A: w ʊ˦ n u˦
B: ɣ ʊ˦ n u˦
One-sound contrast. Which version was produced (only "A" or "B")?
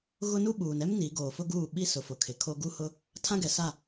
B